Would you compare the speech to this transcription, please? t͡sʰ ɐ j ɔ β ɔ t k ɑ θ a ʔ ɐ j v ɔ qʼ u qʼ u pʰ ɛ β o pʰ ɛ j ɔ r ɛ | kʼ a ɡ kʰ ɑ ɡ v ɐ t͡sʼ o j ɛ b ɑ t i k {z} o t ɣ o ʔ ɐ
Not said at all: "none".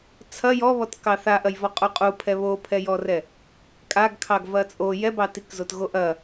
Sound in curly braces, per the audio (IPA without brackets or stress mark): z